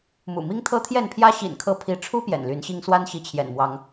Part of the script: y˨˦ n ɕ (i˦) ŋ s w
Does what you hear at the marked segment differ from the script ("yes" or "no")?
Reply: no